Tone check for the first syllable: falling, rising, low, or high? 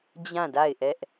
falling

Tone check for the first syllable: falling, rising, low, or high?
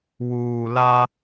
low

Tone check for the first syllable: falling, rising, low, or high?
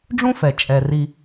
high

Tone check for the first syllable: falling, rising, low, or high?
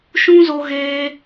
high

